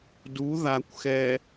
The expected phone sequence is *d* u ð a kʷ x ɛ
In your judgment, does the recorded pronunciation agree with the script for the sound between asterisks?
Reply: yes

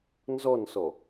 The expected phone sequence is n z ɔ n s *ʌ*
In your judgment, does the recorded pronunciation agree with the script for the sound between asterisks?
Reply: no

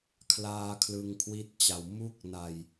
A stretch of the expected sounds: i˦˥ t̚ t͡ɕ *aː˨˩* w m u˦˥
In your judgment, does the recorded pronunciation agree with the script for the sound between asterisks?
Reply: no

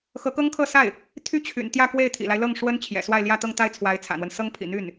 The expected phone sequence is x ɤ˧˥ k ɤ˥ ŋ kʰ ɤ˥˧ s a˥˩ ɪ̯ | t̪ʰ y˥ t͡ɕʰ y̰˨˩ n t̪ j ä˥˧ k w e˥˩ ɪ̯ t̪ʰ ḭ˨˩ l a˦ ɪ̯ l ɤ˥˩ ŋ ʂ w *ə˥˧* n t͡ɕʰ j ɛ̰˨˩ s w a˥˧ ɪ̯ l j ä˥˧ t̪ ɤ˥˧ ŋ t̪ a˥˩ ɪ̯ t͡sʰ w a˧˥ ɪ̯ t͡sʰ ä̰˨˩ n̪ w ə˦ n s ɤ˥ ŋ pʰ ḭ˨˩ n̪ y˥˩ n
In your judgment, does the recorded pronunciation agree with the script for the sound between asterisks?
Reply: no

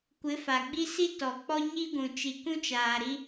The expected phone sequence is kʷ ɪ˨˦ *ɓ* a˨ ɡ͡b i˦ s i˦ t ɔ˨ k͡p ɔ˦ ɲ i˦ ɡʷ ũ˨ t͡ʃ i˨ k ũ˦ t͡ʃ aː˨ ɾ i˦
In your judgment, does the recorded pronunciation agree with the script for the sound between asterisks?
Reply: no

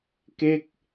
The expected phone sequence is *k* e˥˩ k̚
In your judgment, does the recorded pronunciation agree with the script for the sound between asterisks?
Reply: yes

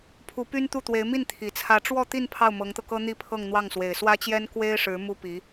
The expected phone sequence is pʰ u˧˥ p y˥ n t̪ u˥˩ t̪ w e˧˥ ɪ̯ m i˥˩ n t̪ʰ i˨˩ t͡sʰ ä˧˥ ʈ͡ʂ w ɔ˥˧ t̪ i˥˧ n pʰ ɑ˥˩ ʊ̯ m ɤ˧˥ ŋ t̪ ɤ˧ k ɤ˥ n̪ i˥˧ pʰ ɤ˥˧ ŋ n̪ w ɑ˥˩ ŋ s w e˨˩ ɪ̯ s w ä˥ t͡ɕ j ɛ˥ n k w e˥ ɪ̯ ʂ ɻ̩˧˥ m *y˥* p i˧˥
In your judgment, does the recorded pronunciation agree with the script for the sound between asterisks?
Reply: no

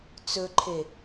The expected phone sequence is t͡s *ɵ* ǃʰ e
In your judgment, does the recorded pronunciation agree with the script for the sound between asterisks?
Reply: yes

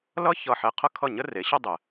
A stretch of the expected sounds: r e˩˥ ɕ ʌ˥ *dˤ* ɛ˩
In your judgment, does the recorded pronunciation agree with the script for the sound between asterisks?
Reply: yes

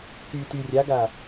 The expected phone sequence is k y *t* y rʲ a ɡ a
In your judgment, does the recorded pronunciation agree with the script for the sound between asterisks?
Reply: yes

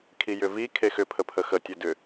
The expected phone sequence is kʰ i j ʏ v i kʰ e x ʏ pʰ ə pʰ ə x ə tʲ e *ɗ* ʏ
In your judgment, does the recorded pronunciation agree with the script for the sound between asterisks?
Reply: no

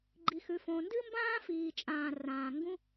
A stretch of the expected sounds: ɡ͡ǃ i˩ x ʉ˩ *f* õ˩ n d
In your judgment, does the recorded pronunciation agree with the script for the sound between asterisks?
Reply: yes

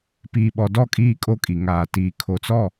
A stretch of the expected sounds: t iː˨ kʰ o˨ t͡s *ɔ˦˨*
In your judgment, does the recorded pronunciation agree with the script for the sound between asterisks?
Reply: yes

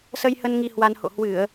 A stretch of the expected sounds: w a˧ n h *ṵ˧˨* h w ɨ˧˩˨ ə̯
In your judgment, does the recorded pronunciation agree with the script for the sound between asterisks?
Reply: no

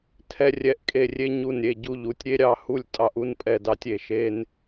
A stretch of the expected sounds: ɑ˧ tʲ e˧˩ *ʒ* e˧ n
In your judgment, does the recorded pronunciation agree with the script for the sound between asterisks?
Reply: no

